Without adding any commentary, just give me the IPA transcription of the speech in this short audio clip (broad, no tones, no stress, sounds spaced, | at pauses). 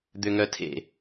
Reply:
d̪ ʏ ŋ œ tʰ ḛ